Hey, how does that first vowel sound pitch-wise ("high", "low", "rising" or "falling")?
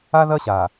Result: high